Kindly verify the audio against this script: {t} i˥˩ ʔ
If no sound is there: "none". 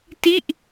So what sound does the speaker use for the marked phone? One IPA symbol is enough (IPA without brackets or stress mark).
t